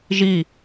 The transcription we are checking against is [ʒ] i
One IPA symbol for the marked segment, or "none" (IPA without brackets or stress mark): ʒ